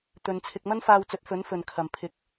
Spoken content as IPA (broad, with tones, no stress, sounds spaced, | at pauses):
t̪ ɵ˨˧ n t͡sʰ ɪ˧ k̚ m ɐ˥ n f aː˧ w t͡s ɵ˨˥ t̚ f ɵ˨˥ n f ɵ˨ n kʰ ɐ˨ m pʰ ɪ˧ k̚